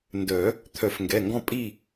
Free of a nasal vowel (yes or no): no